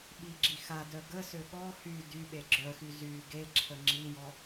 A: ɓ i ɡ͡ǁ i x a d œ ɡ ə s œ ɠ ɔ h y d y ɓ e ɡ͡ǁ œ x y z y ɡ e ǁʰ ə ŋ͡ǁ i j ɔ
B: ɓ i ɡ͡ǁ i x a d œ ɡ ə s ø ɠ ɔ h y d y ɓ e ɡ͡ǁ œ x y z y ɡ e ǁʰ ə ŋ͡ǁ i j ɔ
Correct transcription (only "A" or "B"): B